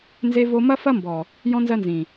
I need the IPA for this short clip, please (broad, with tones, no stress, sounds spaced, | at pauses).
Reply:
n z e˦ v o˦ m ɐ˦ f ɐ˦ m b ɔ˨ | j ɔ̃˦ n z ɜ˦ n z ĩ˨